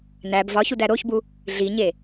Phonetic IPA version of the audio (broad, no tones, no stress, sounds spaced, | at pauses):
n æ b v ɒ ç u d æ ɾ o ç b u | ɮ i ɲ e